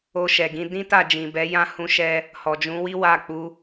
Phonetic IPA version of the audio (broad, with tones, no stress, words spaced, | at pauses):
o˧ʃɛ˨ɡĩ˧ dĩ˦ta˦˨ d͡ʒĩ˨bɛ˨˦jã˦ hũ˧ʃɛ˧ | hɔ˨d͡ʒũ˨˦wi˦ wa˦˨ k͡pu˧